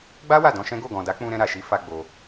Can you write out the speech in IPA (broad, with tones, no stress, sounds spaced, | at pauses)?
ɡ͡b a˦ w a˦˨ d ɔ̃˧ ʃ ɛ̃˦ ɡ o˦˨ ɡ ɔ̃˨ d a˨˦ k͡p ũ˧ ɾ ɛ̃˧ ɾ a˨ ʃ i˨˦ f a˧ ɡ͡b o˧